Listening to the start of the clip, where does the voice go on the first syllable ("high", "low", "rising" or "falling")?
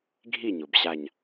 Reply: falling